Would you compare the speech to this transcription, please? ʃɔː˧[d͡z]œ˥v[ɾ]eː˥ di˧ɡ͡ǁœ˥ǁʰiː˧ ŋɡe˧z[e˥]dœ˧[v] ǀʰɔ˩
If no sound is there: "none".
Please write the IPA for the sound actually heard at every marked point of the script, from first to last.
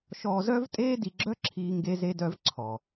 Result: z, tʼ, e˧, v

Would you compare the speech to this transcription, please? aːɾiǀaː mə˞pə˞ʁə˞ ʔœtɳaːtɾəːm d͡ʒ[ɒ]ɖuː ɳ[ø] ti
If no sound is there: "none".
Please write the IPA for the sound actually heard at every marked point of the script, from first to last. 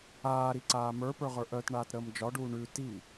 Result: ɒ, ʉ

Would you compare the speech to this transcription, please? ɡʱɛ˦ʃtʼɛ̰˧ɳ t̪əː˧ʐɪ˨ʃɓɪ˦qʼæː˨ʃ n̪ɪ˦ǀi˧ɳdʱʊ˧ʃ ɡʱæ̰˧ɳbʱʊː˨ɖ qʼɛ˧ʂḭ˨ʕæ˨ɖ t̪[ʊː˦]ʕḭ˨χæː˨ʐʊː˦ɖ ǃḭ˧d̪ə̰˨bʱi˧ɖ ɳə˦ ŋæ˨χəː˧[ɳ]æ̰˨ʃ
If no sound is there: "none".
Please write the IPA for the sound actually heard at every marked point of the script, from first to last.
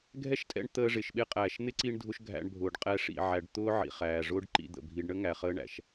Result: ʊː˦, ɳ

